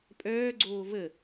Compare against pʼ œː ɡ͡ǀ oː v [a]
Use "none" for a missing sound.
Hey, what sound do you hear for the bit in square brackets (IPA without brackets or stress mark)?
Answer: ə